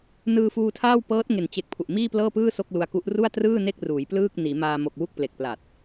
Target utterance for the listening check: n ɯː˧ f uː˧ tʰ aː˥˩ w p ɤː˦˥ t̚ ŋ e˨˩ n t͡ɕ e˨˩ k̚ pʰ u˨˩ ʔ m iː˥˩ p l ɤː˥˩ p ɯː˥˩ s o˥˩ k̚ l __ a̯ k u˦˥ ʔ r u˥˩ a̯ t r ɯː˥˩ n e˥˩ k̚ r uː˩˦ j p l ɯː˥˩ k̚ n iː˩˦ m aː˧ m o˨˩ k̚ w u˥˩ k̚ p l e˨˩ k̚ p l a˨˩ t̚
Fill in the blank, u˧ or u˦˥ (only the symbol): u˧